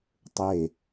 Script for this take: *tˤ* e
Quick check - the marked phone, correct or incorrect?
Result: correct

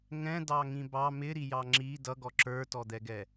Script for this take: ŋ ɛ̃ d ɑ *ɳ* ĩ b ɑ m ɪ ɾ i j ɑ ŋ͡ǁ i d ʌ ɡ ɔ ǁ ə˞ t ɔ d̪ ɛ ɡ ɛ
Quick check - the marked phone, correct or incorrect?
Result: incorrect: ŋ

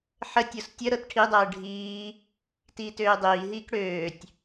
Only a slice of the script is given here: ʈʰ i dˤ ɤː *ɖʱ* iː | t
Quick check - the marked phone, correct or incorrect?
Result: correct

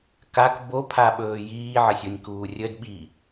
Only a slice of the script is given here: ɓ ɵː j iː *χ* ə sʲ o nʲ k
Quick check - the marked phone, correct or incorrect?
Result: incorrect: ʕ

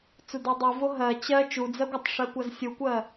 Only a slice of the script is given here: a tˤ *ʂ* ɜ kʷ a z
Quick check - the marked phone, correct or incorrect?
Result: correct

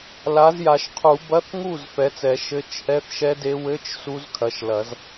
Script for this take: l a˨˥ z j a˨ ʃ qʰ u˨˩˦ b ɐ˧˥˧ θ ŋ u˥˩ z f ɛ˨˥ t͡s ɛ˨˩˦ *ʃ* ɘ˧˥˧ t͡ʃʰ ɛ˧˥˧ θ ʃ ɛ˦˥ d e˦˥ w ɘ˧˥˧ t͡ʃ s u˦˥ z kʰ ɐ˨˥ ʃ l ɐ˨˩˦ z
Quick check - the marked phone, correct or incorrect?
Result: correct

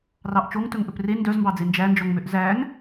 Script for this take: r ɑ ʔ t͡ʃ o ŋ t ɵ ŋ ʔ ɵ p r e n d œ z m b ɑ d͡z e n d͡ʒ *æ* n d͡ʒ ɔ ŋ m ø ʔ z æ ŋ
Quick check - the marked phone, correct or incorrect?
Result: correct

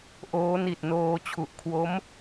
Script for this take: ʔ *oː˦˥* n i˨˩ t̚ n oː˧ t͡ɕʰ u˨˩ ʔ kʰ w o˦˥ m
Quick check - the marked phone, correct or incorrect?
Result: correct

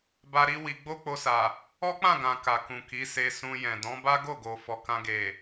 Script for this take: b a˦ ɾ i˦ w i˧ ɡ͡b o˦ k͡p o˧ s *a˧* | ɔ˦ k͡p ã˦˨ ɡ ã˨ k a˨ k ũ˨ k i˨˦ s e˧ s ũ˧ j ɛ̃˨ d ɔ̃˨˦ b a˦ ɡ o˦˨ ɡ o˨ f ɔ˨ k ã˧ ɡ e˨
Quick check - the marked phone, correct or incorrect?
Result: incorrect: a˨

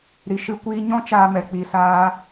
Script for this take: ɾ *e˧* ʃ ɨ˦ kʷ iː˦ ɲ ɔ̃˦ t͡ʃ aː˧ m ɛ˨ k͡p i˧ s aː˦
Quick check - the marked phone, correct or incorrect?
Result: incorrect: i˧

